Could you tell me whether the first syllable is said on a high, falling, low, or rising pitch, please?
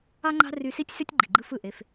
high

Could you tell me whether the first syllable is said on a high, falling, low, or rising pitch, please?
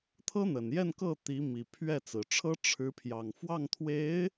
high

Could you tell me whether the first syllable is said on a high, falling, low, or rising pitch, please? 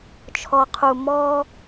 low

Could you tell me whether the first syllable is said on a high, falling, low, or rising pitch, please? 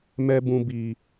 low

